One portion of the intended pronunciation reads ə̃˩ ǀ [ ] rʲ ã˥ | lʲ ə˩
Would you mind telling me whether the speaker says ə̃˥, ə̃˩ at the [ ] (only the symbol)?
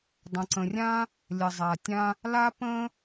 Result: ə̃˩